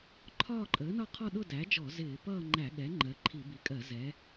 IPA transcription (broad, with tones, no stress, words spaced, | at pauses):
ǃʰɒː˥˧ǃʼəː˩˥nɒ˥˧qʰɔ˥˧ ɗʊ˥˧dæ˩˥d͡ʒɔ˧˩˧ zɪː˧˩˧ pʌː˥˧ŋ͡ǃæ˧˩˧ɠɛ˩˥ ŋ͡ǃɜ˩˥ǃʰi˧˩˧bi˩˥kʼɜ˧˩˧ zɛ˩˥